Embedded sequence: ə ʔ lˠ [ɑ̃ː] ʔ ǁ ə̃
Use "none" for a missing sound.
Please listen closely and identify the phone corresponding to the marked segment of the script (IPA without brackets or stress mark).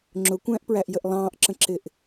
ɑ̃ː